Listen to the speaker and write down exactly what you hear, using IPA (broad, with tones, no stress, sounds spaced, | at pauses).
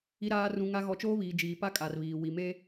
i˨ ɾ aː˨ r ũ˨ ŋ a˨ ɣ ɔ˨ t͡ʃ oː˦ β iː˨ d͡ʒ iː˨ p a˦ kʼ a˨ r β iː˨ w i˨ m e˦